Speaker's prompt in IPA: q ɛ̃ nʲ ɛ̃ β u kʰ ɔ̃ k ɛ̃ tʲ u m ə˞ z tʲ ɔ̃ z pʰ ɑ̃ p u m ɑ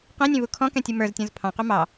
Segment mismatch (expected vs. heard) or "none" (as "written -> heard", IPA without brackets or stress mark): p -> q